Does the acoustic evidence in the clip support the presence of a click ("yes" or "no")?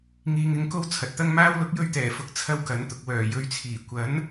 no